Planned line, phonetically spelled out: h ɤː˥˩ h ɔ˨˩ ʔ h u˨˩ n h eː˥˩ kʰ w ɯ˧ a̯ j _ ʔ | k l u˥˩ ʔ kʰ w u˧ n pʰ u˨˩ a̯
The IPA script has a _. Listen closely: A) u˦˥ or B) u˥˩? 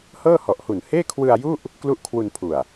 B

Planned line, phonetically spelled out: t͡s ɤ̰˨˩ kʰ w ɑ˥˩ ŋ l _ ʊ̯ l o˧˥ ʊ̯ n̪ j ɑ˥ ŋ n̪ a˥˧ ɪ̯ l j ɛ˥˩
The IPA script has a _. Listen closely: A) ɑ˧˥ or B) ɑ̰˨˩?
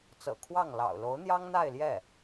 B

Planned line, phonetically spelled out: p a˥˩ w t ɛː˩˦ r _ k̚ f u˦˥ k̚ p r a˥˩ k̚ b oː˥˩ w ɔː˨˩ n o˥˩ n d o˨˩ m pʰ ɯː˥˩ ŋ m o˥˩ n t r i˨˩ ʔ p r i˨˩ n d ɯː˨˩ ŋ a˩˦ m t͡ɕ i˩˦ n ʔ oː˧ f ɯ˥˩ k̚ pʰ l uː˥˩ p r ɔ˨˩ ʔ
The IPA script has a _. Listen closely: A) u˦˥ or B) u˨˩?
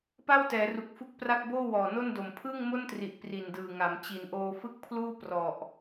B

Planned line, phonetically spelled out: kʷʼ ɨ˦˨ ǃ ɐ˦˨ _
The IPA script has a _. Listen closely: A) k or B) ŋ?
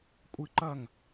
B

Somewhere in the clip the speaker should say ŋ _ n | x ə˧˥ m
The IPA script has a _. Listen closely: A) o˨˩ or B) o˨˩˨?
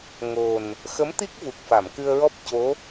A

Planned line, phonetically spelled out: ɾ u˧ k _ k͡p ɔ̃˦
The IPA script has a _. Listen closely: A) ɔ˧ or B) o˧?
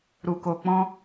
B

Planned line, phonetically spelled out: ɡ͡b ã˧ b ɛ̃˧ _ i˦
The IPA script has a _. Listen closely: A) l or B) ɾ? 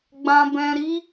B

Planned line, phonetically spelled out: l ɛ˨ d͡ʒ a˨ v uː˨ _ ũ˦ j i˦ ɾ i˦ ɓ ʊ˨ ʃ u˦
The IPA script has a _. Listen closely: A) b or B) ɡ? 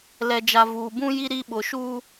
A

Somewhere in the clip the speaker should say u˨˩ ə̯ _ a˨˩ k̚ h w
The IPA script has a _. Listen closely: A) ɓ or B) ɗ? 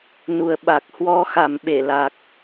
A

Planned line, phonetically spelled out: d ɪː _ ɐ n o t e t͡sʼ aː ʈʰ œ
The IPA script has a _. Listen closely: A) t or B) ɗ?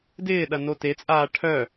B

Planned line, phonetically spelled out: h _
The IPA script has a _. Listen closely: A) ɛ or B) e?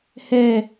A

